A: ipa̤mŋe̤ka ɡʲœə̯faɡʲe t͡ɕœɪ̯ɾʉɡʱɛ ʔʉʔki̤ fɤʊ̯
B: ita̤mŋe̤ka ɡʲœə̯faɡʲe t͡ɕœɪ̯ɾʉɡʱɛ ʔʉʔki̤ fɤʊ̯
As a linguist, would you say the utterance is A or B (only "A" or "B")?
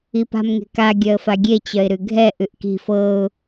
A